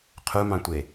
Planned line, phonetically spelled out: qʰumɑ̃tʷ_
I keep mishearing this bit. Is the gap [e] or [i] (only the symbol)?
e